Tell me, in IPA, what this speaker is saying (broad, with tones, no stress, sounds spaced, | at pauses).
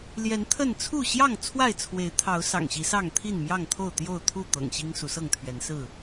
l j ɛ˨˦ n t̪ʰ ə˥˨ n t͡sʰ u˥˨ ɕ j ɑ˥˨ ŋ t͡sʰ w a˥˨ ɪ̯ t͡sʰ w e˨˦ ɪ̯ t̪ʰ ɑ˨˦ ʊ̯ s ɑ̰˨˩ ŋ ɕ i˨˦ s ɑ˥˨ ŋ t̪ʰ i˥˨ n m j ɑ˥˨ ŋ t̪ʰ o˥˨ ʊ̯ t̪ j o˥˨ ʊ̯ t̪ʰ u˥˨ t̪ ɤ̰˨˩ ŋ ɕ i˦ ŋ s u˨˦ s ɤ˥˨ ŋ t̪ʰ ɥ ɛ˨˦ n s ɹ̩˥˨